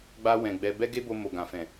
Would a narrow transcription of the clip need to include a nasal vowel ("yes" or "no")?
yes